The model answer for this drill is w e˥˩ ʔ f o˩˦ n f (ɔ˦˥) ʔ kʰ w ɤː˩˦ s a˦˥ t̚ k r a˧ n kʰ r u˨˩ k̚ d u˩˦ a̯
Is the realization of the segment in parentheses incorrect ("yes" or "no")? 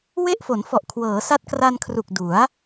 yes